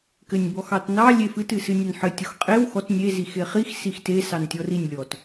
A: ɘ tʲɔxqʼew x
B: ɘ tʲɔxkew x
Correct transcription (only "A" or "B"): A